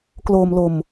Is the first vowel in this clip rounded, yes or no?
yes